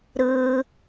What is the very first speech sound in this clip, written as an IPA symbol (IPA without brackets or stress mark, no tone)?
ɾ